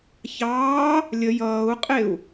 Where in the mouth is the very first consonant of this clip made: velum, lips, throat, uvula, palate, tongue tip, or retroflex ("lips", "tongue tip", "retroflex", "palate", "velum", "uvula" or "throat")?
palate